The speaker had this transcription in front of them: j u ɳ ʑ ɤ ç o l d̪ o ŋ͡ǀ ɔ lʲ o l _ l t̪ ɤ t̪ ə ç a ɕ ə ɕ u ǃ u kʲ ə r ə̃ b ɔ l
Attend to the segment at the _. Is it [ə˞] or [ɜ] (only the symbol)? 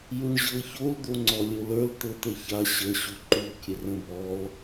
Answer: ə˞